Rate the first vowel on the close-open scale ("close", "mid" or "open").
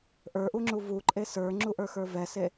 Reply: mid